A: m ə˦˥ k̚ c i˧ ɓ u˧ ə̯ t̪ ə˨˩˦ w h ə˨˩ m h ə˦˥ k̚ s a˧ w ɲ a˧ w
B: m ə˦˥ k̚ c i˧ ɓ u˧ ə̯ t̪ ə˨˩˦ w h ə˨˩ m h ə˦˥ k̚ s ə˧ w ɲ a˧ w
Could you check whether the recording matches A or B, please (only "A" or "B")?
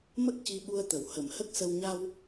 B